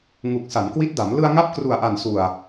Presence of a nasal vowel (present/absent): absent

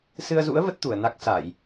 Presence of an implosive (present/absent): absent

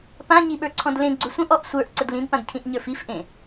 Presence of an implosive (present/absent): present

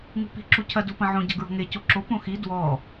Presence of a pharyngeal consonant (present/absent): present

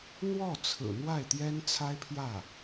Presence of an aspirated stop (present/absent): present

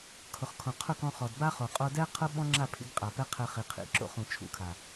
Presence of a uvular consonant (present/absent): present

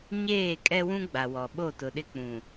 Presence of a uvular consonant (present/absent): absent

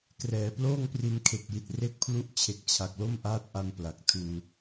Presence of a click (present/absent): absent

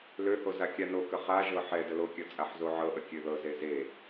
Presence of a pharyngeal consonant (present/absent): present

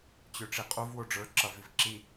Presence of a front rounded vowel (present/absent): present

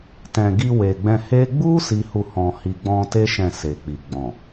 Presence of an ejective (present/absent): absent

